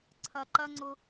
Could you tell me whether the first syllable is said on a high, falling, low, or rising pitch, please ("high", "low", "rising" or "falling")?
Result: low